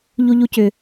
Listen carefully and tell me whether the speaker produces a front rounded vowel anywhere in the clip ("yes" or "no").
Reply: yes